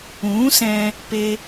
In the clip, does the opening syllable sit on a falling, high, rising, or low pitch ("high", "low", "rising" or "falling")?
rising